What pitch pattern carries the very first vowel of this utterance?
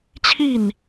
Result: falling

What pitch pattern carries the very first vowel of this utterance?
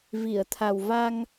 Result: low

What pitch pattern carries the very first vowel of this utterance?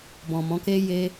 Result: low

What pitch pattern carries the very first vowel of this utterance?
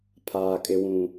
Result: low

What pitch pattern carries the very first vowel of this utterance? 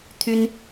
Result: high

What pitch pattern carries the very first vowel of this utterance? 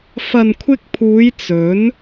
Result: low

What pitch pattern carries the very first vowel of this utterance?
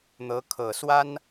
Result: rising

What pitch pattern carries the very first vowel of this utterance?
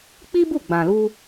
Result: high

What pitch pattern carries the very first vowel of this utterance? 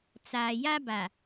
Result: low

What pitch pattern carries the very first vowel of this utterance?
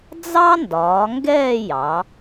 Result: high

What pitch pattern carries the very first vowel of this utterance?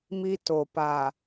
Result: high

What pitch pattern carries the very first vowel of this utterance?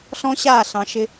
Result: high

